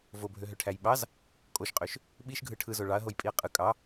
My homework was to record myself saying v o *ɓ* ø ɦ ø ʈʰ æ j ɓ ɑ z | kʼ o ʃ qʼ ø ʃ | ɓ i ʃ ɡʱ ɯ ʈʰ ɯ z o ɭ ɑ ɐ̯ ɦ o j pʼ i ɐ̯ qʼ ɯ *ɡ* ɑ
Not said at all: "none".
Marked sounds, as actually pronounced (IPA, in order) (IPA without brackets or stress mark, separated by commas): bʱ, kʼ